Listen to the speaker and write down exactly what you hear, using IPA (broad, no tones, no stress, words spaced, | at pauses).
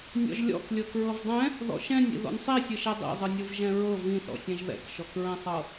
nʲɔ̰ʒlʲɔ̰klʲɤ kɹɤvdˤɛ̃ | ðɔ̰ʃɛ̃nʲḭ ðɔ̰nʲsˤisʲɯʃɛ dˤḭzˤɯnʲɤv ʒɛ̃ɹɤ vĩsɔ̰sʲɛ̃ʒ ðɛ̰kʃɔkɹɛ̃sˤɤ